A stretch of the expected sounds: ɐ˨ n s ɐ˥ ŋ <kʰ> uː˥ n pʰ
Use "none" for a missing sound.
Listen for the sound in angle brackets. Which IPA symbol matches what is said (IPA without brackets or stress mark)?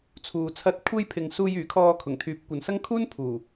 kʰ